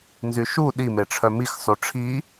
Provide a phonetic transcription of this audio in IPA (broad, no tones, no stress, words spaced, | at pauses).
nzyʃu ɗimeʈ͡ʂʰœ mix sˤuʈ͡ʂʰi